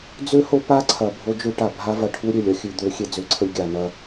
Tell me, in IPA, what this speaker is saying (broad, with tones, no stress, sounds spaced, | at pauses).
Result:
d͡z ø˦ h o˦ p a˦ ǀʰ ɐ˨ bʱ o˦ d͡ʒ ø˦ ʈ a˨ bʱ a˦ v ɐ˨ ʈʰ u˦ ɾʲ ø˨ lʲ ɐ˦ xʲ ʉ˦˨ d̪ ø˦ xʲ e˦ d͡z ø˨˦ ǀʰ ə˦ lʲ ɡʲ a˨ n ɐ˦